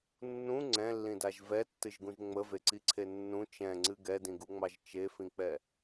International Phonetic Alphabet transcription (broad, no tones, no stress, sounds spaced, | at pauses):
nː ũ ŋ͡ǀ ɛ̃ lː ĩ d a ʒ v ɛ tː ɨ ʒ ɡ ũ ʒ ŋ͡m ə v e ǀ i ǀʰ e nː ũ t͡ʃ ɛ̃ ŋ͡ǀ ɨ ɡ ɛ d ĩ ɡ u ŋ͡m ɑ ʒ t͡ʃ e f ĩ k͡p ɛ